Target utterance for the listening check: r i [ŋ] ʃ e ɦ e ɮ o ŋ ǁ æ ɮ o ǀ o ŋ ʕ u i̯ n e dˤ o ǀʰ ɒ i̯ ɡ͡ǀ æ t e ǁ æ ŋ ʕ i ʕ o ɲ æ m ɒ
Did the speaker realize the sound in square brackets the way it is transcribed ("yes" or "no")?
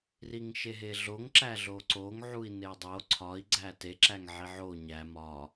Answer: yes